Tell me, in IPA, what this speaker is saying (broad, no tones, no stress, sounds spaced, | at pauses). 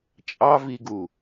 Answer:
t͡ʃʼ ɑ v i ɡ u